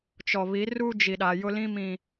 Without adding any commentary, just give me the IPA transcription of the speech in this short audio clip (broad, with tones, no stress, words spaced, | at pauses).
t͡ʃɔ˨βi˨˦ ruː˦d͡ʒi˨ɗa˨ jʊ˦lĩ˦mĩ˨